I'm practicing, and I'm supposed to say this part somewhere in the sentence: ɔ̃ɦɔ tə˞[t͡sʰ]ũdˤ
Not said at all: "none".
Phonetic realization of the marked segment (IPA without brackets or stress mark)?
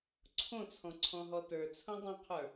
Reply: t͡sʰ